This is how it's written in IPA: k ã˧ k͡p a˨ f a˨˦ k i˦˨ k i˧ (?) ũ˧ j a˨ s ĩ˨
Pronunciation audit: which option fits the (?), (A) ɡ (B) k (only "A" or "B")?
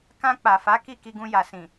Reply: A